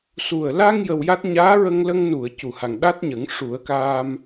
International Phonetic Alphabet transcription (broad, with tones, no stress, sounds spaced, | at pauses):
s u˨˩ ə̯ l a˧ ŋ j ə˧ w j a˦˥ t̚ ɲ aː˧˥ ɹ ə˧ ŋ l ə˧ ŋ n u˨˩˨ ə̯ c u˨˩˨ h a˨˩ ŋ ɗ a˦˥ t̚ ɲ ə˨˩˦ ŋ ʂ u˨˩˦ ə̯ k aː˧ m